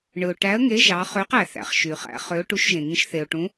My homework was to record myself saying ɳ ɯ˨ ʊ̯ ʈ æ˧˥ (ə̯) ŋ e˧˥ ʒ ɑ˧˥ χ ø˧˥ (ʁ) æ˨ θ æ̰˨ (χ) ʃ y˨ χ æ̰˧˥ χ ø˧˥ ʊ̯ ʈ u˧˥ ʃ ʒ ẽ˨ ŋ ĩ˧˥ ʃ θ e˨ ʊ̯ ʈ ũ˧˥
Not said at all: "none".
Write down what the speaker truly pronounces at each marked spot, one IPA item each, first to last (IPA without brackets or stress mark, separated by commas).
ə̯, q, χ